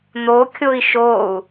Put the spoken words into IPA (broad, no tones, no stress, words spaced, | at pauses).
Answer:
n̪okʲoi̯ ʃou̯